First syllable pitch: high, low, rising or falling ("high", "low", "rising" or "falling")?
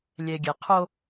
low